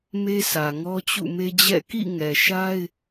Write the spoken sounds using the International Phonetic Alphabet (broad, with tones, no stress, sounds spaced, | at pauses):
m e˦ sʰ ä˨ ŋ ɔ˦ t͡ɕ ṵ˦˨ m e˦ d͡ʑ ɛ̰˦˨ k ḭ˦˨ ŋ ɛ˨ ʃ a˦ ɪ̯